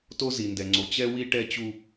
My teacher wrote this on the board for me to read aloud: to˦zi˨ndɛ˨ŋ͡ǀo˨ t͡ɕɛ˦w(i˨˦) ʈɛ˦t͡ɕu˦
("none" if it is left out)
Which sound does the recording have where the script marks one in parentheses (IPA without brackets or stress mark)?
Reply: i˦